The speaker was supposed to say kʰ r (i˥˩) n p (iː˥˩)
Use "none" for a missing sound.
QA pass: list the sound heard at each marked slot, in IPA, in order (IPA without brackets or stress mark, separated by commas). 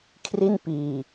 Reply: i˥˩, iː˨˩